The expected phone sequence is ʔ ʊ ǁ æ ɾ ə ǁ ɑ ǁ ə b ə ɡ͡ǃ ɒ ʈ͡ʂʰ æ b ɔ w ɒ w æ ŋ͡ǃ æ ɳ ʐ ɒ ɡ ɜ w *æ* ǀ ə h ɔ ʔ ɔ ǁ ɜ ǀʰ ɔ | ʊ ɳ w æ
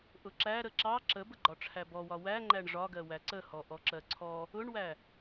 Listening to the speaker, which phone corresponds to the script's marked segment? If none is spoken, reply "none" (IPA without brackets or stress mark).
æ